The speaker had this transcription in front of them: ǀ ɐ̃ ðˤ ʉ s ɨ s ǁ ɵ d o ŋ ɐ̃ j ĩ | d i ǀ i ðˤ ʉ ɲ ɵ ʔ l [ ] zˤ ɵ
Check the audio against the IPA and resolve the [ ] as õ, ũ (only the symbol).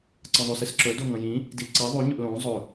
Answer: õ